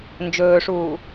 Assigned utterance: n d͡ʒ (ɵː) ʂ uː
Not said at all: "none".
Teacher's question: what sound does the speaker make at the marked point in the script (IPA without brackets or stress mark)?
ɵː